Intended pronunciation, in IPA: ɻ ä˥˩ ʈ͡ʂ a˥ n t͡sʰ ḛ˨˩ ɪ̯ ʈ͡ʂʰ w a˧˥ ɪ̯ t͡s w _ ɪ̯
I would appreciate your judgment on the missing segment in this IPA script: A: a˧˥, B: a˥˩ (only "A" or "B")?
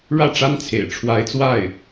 B